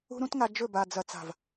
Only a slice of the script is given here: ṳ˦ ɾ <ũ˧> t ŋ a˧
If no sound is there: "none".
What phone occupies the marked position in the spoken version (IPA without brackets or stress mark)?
ũ˦